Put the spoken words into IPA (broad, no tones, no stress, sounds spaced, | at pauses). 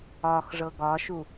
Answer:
ɒ x ʐ ɤ ɡ ɒ ʃ u